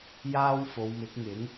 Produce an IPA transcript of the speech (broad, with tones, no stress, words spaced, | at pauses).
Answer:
jaː˥w fo˨˧wmɪ˨˥k̚ŋɪ˨˥ŋ